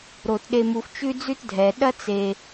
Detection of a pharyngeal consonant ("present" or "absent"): absent